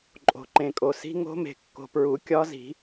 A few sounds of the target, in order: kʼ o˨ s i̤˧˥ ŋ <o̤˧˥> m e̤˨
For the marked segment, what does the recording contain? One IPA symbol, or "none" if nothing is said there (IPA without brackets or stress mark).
o̤˧˥